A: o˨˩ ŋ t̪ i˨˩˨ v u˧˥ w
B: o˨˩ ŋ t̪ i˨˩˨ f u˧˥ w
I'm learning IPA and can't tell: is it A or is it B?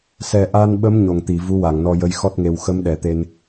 A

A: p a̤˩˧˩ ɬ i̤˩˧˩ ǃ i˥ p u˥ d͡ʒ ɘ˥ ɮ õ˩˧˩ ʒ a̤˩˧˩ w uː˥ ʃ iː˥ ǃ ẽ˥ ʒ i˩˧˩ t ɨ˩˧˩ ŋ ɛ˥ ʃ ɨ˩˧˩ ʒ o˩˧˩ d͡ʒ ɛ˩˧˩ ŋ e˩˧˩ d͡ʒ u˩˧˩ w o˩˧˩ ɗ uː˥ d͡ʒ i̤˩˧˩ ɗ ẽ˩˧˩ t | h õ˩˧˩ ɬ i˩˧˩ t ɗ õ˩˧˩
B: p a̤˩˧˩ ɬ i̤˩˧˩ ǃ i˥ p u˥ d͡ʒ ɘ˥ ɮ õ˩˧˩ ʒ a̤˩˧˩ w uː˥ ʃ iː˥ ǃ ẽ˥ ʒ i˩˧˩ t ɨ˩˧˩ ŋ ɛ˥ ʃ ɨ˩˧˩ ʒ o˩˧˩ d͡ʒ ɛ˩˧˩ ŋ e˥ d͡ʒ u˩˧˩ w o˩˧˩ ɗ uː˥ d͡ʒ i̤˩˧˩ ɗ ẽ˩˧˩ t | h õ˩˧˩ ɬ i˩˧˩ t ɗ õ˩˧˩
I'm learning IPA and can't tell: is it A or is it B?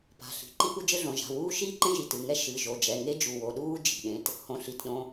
B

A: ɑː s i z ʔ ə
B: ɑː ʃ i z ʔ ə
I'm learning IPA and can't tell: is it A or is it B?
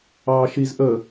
B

